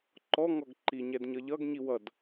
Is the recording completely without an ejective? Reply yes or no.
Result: yes